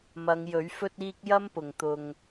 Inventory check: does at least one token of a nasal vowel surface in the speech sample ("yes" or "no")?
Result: no